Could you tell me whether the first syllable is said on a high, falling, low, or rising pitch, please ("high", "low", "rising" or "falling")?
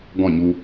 falling